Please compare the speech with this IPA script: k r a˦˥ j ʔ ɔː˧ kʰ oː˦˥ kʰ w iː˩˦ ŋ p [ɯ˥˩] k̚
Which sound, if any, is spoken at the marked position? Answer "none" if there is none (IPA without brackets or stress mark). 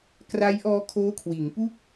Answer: u˥˩